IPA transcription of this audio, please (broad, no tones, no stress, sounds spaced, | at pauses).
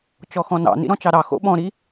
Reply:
t͡ʃ ɔ x ɔ̃ n ɑ̰ n ḭ ɾ ɔ̃ t͡ʃ ɑ ɾ ɑ x o̰ ɓ ɔ̃ ɾ i